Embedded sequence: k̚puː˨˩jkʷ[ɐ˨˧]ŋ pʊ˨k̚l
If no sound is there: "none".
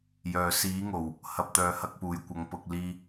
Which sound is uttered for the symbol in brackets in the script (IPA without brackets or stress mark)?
ɐ˨˧